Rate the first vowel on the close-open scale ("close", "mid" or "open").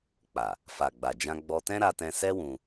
open